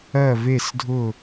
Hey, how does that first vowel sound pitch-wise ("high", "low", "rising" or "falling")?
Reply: falling